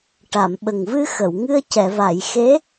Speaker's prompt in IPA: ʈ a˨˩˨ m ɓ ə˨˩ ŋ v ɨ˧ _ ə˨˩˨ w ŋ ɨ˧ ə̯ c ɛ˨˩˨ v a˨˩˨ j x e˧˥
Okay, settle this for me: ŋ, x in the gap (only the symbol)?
x